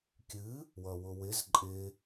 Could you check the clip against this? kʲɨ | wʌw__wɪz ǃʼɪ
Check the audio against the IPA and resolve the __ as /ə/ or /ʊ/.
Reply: ʊ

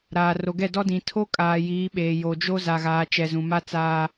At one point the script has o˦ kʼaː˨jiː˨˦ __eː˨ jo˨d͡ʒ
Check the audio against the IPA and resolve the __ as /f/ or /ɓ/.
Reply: ɓ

